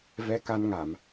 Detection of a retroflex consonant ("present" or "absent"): absent